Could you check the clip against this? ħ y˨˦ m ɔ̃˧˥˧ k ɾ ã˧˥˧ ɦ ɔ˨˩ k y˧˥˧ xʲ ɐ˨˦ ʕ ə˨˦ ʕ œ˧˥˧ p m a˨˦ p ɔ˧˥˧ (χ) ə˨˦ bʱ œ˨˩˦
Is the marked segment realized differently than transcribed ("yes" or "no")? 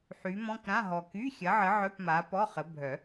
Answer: no